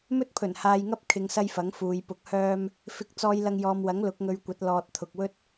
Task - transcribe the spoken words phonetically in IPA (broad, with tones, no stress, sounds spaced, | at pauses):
m ɵ˥ t̚ pʰ ɵ˨˩ n h aː˨ j ŋ ɐ˥ p̚ kʰ ɪ˧ ŋ s ɐ˥ j f ɐ˨˥ ŋ f uː˨˧ j p ʊ˨ k̚ h œː˥ m | f ɪ˨ k̚ t͡s ɔː˨ j l ɐ˨ ŋ j ɔː˨ m w ɐ˨˥ ŋ l ʊ˨˥ k̚ ŋ ɵ˧ ɥ kʷ ɐ˨˥ t̚ l ɔː˨ t̚ t̪ʰ ʊ˨ k̚ w ɵ˥ t̚